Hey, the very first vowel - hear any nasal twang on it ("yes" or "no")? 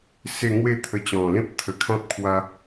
no